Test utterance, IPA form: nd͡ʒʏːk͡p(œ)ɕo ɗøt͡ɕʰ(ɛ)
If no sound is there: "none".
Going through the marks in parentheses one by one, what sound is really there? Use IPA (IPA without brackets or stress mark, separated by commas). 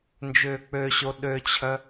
ø, œ